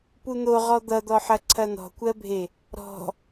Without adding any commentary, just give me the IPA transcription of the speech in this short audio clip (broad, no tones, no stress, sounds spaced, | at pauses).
p u n̪ o ʁ ɔ d̪ ʌ d̪ ɔ ħ ɐ ǀʰ ɐ n̪ ɔ̤ kʷ ɜ bʱ e | ɾ ɔ̤